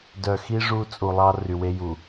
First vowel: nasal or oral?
oral